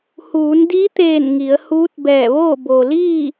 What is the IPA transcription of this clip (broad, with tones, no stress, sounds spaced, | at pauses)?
h uː˩˧ n d i˧˥ t̪ eː˧˩ n ŋ i˩˧ ə̯ h uː˧˥ t̚ b ɛː˧˩ ʋ oː˥˨ b o˩ l iː˥˨